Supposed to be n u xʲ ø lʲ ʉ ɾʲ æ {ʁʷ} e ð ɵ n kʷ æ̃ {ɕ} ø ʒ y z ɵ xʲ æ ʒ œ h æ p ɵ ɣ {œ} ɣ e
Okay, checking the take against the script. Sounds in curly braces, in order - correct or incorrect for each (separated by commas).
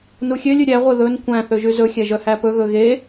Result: correct, incorrect, incorrect